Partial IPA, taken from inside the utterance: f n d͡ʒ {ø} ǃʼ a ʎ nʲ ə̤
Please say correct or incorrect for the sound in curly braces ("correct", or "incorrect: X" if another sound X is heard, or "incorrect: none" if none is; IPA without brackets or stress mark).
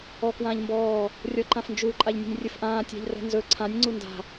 incorrect: u